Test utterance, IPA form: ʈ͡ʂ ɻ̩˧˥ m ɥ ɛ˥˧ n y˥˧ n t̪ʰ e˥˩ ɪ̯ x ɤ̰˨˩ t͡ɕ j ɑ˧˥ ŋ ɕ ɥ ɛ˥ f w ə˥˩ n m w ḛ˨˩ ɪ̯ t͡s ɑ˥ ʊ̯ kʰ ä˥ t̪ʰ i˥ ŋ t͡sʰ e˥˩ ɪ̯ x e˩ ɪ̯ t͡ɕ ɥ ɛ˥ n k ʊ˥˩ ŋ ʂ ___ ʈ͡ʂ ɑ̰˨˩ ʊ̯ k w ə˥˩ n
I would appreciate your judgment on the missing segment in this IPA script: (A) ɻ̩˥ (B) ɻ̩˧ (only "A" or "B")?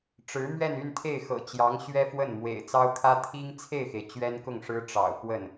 A